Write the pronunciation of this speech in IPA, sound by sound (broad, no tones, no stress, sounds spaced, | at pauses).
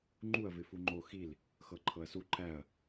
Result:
ŋ͡ǃ u ɐ̯ v ɪ f u ŋ͡ǃ o x i l | x ɤ ǃʰ ɤ ɐ̯ s u ǃ æ ɐ̯